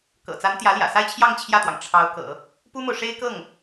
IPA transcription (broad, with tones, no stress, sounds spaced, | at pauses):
k ɤ̰˨˩ t͡s a˧˥ n t̪ j ä˧˥ l j ä̰˨˩ s a˥˧ ɪ̯ t͡ɕʰ j ɑ˥˧ ŋ t͡ɕʰ j ä˥˩ t̪ w ɑ˩ ŋ ʈ͡ʂʰ ɑ˧˥ ʊ̯ k ɤ̰˨˩˦ | p u˥ m o˨ ʊ̯ ʂ e˥ ɪ̯ k ɤ˥˩ ŋ